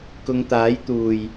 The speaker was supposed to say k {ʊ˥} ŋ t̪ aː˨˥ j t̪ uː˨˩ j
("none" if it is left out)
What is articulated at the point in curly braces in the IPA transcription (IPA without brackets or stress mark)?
ʊ˨˧